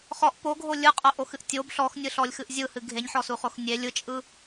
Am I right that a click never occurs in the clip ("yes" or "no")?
yes